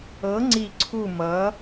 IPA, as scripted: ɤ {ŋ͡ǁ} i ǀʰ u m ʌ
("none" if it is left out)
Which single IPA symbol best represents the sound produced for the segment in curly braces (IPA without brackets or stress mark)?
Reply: ŋ͡ǀ